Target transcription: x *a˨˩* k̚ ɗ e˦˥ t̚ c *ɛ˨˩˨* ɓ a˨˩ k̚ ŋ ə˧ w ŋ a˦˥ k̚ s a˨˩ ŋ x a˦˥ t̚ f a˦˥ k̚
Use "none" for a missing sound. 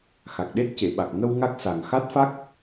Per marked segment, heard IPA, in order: a˨˩, e˨˩˨

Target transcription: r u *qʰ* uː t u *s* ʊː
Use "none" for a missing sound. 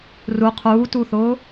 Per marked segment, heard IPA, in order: qʰ, θ

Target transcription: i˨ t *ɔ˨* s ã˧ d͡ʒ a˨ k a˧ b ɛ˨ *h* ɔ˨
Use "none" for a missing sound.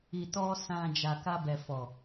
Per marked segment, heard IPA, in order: ɔ˧, f

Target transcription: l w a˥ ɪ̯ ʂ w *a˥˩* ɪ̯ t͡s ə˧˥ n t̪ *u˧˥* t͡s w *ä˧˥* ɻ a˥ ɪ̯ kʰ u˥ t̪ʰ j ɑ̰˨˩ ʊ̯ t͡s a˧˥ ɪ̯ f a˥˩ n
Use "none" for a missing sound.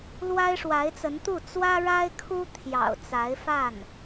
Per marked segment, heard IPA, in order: a˧˥, u˥˩, ä˥

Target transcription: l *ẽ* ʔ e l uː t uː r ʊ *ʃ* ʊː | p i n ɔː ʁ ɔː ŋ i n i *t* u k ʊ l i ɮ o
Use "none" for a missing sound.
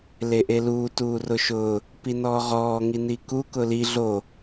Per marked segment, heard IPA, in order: e, ʃ, k

